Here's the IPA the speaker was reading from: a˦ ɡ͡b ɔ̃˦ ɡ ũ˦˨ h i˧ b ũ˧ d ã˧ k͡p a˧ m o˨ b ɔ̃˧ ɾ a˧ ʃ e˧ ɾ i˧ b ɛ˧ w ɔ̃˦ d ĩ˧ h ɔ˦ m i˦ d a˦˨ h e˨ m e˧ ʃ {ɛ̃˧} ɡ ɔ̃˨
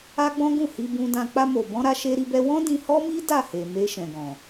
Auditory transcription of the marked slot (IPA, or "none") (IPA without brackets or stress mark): ɛ̃˨